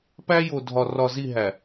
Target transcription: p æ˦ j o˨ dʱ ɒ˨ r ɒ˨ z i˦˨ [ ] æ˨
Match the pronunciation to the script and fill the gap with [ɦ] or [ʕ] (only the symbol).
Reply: ɦ